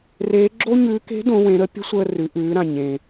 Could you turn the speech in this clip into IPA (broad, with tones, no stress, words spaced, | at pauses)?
reː˧˥ ɡ͡ǁo˥ɲʉː˧˥ ke̤˧˥ dõ˧˥wẽ˧˥ɾə˥ pʲə̤˥sʷəː˧ rʉ˩˧ʔʉː˩˧ɾã˩ ɲẽ˩